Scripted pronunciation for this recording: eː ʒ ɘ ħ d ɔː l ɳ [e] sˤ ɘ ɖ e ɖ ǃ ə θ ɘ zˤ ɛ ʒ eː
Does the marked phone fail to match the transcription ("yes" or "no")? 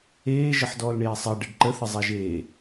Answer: yes